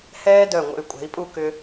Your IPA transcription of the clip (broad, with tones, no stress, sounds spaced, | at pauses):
h ɛː˥ d œ˧˩ ŋʷ ə̰˧˩ y̯ kʷʼ ɛ̤˩˧ i̯ pʼ u˥˧ k ʏ˧